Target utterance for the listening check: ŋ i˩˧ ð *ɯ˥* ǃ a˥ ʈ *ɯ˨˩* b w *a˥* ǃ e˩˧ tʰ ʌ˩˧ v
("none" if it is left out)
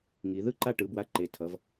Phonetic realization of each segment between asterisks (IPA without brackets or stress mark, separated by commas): ɯ˥, ɯ˩˧, a˧